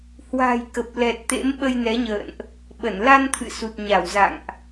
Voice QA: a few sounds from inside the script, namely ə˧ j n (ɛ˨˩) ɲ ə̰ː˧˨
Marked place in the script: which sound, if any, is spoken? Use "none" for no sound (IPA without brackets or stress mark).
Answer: ɛ˨˦